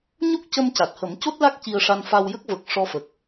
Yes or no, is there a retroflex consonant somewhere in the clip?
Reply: yes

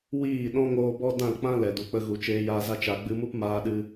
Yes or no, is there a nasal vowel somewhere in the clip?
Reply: yes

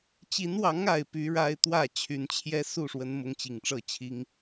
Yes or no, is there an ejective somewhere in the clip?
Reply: no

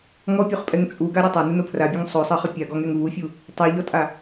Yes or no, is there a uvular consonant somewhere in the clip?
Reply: yes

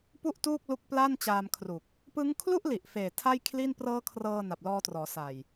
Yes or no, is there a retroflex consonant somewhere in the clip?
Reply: no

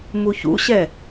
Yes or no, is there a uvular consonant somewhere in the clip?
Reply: no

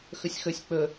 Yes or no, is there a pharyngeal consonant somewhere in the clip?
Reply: no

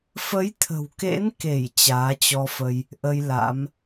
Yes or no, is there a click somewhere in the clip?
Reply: no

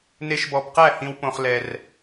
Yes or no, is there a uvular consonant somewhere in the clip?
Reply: yes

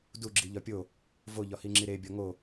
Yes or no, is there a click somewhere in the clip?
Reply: yes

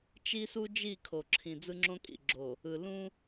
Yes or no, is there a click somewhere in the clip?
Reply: yes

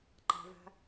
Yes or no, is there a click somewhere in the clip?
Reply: yes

